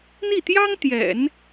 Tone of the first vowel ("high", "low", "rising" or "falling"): falling